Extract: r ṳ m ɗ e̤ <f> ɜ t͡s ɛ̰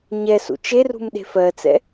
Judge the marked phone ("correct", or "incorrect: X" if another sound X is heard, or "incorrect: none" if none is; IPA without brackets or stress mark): correct